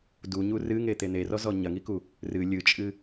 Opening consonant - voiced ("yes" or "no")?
yes